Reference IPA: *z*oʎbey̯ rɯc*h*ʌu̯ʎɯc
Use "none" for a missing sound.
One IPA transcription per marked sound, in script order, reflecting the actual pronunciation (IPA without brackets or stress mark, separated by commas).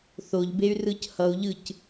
θ, h